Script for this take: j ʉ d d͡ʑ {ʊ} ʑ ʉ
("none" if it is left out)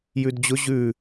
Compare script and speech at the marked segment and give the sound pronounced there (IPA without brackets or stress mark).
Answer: ʊ